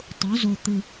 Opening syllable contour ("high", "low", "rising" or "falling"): rising